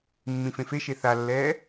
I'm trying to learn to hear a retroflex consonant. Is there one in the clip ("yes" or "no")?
no